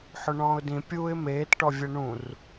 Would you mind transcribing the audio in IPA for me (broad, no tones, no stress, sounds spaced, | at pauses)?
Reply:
ħ ʊ ɳ ɔ̃ː ʊ̯ d ĩ pʲ uː ɪ̯ m eː t ʈ ɔ vʲ ɛ ɳ ũ r